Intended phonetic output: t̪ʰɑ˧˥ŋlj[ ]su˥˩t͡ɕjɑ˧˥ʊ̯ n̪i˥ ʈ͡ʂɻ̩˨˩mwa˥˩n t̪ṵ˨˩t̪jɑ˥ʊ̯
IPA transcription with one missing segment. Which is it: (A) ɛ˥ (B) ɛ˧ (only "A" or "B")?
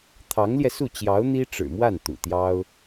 B